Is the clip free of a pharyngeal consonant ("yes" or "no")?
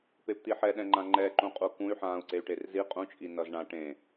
no